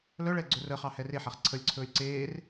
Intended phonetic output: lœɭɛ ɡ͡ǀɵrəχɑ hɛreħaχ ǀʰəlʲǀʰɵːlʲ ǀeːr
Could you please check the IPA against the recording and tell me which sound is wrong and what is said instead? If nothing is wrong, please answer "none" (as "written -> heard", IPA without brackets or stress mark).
none